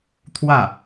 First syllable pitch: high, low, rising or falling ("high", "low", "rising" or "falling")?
falling